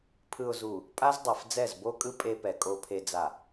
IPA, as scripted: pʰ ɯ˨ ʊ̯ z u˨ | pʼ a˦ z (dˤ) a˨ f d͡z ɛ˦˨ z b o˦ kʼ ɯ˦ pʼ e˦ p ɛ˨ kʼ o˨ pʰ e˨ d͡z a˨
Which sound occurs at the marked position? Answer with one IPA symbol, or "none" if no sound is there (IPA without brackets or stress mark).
dˤ